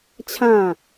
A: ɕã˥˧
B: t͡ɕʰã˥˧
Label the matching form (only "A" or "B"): B